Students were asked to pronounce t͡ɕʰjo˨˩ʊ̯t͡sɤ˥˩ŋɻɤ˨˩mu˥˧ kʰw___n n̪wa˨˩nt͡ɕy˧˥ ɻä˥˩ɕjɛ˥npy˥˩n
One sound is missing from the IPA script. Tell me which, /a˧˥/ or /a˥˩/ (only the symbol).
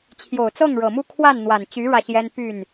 a˥˩